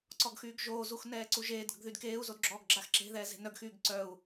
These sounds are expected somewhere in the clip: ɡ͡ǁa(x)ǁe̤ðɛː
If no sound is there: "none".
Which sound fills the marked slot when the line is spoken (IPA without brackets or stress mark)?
x